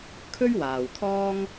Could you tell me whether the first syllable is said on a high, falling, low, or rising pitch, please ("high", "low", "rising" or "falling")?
high